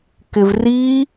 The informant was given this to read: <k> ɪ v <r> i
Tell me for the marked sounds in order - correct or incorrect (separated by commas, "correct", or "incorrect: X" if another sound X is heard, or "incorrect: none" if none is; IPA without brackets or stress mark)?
correct, correct